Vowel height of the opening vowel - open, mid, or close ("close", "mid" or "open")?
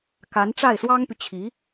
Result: open